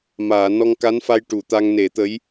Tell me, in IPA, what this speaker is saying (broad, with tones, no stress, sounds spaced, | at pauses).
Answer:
m aː˨˩˨ n ɔ˧ ŋ k a˧˥ n f a˧ j ʈ u˨˩˨ t̪ a˧ ŋ n e˨˩˦ t̪ ə˧˥ j